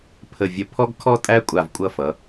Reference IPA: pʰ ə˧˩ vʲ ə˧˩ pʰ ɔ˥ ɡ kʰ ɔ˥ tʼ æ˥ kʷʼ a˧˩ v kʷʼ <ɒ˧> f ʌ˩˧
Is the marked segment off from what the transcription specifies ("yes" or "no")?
yes